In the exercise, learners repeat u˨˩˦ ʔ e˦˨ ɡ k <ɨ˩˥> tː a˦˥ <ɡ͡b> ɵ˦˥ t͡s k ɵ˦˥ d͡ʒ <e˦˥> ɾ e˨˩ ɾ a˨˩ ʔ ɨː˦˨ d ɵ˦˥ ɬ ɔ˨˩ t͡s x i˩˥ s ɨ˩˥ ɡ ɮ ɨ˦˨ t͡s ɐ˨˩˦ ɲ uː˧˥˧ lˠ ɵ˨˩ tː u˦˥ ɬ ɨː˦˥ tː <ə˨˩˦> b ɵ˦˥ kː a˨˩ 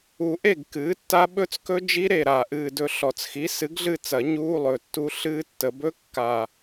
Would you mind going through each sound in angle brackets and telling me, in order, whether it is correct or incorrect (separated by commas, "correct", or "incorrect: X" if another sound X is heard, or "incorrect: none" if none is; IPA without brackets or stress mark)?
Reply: incorrect: ɨː˩˥, incorrect: ɓ, incorrect: i˦˥, correct